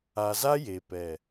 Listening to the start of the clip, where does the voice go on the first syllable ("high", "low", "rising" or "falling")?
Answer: low